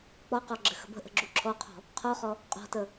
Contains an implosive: no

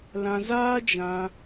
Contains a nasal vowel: yes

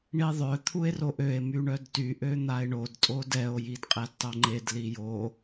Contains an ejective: yes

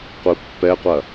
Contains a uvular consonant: yes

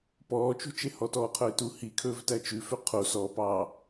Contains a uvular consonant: yes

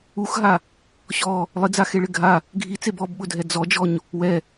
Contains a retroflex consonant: yes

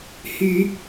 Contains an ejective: no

